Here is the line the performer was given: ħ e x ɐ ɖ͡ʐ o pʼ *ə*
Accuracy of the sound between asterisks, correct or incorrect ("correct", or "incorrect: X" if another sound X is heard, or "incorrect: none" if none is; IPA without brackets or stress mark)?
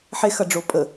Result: correct